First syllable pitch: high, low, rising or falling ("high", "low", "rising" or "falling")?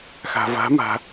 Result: low